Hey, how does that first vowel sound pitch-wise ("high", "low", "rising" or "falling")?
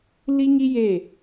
high